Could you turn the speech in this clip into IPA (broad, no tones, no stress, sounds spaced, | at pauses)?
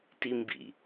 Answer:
t i m b ḭ